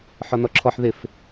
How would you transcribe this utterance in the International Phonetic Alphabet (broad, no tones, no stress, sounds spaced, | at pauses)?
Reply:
ħ ɔ n ɔ ǁʰ ɔ ħ ð ɪ f